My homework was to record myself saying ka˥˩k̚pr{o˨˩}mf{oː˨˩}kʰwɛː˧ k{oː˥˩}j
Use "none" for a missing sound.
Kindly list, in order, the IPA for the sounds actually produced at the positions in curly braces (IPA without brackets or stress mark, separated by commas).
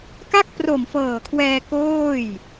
o˨˩, ɤː˨˩, oː˥˩